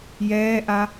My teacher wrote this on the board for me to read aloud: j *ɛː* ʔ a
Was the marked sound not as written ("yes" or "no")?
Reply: no